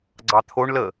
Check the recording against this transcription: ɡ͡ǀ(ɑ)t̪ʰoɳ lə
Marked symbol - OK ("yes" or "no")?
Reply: yes